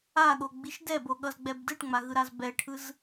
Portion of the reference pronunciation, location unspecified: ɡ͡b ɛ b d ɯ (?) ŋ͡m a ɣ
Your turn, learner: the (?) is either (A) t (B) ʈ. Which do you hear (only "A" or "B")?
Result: B